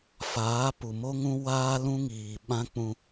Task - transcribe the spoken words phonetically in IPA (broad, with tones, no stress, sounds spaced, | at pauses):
f aː˨˦ p u˨ m o˦ ŋ ũ˦ w aː˦ l ũ˦ ŋ iː˨ ɓ ã˦ k͡p ũ˦